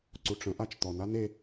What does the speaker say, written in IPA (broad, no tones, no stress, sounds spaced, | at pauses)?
ǀ u ʈ͡ʂ ə̃ ʔ a t͡ʃ t̪ ɔ n a n e